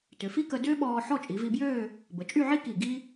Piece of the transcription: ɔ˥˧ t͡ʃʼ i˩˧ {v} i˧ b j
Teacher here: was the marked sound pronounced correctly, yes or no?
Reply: yes